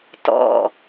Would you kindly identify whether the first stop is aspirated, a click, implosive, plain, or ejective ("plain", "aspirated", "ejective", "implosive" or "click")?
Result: plain